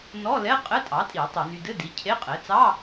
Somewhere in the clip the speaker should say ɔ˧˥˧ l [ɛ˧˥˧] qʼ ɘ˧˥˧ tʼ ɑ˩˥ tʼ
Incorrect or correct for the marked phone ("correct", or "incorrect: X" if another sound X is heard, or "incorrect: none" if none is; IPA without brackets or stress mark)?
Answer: correct